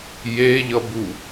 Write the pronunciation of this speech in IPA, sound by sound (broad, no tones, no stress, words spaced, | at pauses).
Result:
jeʎʌbu